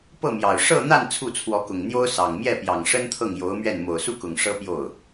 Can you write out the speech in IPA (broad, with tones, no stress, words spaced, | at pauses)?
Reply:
pɤ˥˩mjɑ˨˩ʊ̯ ʂɤ˥˧n̪a˥˧n t͡sʰu˥˩t͡sʰwɔ˧˥kʊ˨˩ŋn̪jo˥ʊ̯ sɑ˨˩ŋ mjɛ˥˩pjɑ˨˩ŋʂə˥nt̪ʰɤ˥˩ŋ jo˧˥ʊ̯mɥɛ˥˩n mo˨˩ʊ̯su˥˩kʊ˨˩ŋ ʂɤ˥pjo˥˩ʊ̯